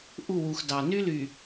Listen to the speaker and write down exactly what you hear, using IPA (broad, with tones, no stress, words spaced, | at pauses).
ʔu˦˨wu˨xdɑ˨ ny˦ly˨